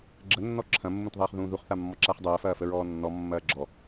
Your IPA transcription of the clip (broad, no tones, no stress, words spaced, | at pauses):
ɡ͡ǁənːɔ ǁʰɐ̃mːũtðˤɐːχ ðũːðuχθamːɔ ǁaχdˤɐːfɐːfə ɹɔːnːɔ mːɐːɡ͡ǁɔ